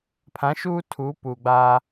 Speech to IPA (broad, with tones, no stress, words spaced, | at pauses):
pʰã˨˦ʃuː˦ tʰuː˨˦puː˨ɡ͡baː˦